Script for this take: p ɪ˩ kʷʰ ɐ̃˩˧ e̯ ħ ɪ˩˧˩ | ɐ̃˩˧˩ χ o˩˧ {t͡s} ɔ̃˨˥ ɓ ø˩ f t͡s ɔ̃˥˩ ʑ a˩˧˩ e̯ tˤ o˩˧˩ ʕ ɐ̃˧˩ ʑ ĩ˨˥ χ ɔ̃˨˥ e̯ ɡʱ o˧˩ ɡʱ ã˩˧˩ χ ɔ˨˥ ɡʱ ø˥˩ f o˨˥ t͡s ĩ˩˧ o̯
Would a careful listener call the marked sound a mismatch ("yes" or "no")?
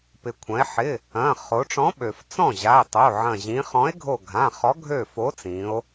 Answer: yes